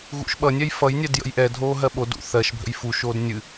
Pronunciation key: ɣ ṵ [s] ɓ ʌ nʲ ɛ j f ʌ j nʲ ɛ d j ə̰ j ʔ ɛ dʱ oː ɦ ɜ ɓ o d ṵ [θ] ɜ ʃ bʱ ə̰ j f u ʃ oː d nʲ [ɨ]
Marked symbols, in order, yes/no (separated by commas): no, yes, yes